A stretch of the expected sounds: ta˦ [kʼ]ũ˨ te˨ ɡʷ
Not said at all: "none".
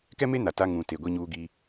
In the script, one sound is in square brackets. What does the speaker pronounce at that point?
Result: ŋ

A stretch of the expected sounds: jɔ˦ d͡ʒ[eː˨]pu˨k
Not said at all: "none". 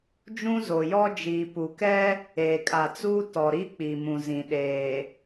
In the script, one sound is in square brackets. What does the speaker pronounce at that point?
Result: iː˨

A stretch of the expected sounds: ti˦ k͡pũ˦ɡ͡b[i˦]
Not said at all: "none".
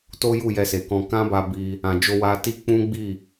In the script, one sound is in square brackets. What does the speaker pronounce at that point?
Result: i˦˨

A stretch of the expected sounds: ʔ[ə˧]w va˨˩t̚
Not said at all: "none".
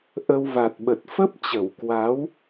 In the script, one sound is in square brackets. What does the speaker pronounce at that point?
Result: ə˧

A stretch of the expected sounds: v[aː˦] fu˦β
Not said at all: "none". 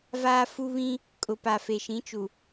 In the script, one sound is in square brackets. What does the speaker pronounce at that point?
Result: aː˦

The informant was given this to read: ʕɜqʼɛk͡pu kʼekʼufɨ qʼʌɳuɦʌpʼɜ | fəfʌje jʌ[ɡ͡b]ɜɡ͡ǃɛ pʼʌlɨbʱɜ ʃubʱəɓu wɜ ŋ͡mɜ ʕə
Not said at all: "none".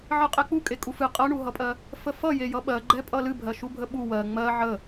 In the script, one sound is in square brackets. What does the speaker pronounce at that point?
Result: ɓ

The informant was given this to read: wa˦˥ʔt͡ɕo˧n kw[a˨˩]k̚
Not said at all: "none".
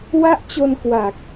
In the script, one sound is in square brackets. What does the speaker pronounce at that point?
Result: a˨˩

